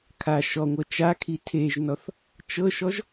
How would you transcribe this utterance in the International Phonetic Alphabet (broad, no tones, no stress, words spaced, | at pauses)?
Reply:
kʰa ʃɔŋʷɤ t͡ʃakʰi tʰeʒnɔθ | t͡ʃɤʃɔʒ